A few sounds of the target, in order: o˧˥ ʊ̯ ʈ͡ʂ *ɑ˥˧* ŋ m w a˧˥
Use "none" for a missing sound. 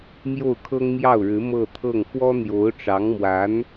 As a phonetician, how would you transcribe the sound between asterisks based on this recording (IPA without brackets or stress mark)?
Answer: ɑ˧˥